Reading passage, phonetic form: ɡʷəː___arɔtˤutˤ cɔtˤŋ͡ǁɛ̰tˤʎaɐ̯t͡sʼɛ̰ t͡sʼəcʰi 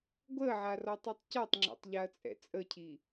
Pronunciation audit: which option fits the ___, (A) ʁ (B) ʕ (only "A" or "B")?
B